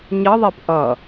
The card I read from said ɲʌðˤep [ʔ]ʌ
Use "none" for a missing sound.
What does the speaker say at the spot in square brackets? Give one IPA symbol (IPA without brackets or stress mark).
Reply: ʔ